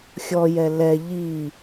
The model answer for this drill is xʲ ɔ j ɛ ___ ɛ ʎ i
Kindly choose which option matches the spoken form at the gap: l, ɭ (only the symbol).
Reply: l